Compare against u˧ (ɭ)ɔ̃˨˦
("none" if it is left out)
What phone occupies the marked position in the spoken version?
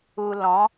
l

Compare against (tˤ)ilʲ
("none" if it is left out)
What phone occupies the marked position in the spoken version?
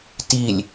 t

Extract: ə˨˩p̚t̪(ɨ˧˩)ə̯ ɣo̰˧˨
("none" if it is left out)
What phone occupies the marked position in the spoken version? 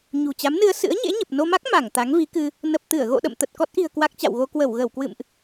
ɨ˧˩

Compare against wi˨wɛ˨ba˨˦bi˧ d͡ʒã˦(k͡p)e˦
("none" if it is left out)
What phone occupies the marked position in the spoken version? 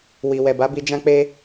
k͡p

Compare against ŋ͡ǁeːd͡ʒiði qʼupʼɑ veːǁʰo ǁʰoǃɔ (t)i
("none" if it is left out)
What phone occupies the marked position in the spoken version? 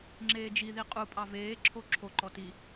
t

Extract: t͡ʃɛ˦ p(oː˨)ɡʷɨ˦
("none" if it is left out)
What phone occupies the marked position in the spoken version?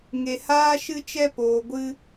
oː˨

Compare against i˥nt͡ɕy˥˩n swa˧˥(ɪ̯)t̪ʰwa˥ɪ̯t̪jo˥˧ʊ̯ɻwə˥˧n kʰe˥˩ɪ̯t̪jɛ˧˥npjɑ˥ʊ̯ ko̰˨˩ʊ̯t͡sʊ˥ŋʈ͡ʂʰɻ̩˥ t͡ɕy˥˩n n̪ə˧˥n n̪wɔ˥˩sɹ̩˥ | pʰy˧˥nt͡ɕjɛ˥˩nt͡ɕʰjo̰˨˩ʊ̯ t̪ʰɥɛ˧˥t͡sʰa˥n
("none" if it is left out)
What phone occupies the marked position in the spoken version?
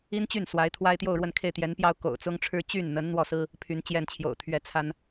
ɪ̯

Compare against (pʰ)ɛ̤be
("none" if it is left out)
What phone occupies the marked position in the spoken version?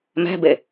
m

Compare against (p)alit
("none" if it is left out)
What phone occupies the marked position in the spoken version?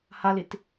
h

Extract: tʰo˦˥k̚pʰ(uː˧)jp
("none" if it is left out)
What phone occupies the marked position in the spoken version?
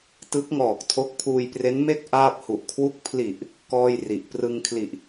uː˧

